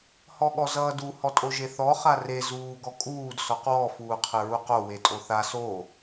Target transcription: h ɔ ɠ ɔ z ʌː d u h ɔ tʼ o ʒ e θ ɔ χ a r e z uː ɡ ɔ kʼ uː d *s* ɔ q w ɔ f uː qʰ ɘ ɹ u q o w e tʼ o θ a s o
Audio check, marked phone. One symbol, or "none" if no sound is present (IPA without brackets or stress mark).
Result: s